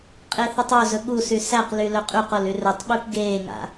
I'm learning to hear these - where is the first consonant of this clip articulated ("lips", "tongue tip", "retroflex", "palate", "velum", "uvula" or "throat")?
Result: uvula